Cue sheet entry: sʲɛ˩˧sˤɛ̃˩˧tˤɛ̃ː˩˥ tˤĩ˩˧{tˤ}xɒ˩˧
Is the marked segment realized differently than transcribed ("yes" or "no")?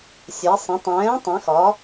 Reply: yes